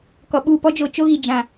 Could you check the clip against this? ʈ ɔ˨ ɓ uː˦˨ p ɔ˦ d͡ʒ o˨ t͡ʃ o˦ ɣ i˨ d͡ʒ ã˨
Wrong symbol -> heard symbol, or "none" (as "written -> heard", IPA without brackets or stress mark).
ʈ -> k